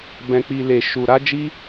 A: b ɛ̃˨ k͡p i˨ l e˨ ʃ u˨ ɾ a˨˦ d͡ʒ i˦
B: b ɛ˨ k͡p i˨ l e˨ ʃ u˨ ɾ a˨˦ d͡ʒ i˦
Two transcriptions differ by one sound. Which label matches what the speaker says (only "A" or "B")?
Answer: A